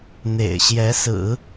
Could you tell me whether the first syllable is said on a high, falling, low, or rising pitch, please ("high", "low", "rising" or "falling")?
low